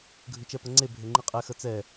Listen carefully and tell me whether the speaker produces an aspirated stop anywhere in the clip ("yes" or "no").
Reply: no